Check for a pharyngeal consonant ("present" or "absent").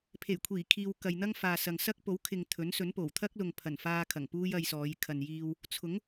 absent